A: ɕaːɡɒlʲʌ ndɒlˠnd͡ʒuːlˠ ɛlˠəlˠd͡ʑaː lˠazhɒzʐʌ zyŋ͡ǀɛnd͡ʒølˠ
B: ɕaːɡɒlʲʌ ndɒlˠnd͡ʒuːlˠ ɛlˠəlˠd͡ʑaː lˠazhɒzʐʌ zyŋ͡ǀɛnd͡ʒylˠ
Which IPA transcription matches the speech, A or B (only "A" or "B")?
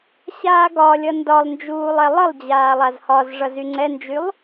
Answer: B